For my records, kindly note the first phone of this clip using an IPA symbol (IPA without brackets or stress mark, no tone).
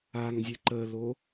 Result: a